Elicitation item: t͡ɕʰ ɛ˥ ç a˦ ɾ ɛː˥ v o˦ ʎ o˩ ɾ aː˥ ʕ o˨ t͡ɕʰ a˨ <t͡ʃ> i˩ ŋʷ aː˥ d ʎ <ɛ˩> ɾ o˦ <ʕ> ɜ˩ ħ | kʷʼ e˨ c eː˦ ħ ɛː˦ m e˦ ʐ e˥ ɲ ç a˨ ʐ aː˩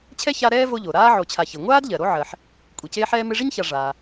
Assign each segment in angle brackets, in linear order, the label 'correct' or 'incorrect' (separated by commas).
incorrect, incorrect, correct